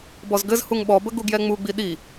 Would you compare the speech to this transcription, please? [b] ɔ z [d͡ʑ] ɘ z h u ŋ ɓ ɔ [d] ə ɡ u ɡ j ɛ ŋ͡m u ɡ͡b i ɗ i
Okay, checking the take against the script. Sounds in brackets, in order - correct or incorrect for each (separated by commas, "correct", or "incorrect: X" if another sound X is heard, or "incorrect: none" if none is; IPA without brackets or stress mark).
correct, incorrect: ɡ, incorrect: b